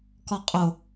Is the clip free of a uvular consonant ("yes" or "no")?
no